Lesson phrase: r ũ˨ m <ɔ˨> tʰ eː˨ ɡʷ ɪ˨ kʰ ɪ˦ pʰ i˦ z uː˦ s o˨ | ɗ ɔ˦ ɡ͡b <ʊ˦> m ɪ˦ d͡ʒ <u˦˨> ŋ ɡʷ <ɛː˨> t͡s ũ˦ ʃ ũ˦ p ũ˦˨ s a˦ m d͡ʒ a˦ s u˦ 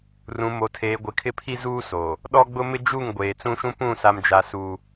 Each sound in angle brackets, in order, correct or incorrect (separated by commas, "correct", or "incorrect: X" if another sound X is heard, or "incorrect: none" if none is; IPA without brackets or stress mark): incorrect: o˨, correct, correct, incorrect: eː˨